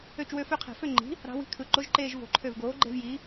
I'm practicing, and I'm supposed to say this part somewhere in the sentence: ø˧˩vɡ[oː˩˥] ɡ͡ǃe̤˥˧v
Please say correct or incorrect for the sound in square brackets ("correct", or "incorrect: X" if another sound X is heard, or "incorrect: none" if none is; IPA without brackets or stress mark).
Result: correct